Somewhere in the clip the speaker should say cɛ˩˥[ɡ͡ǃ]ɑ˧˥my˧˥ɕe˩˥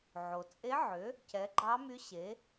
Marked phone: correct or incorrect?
correct